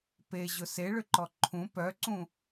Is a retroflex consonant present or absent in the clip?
present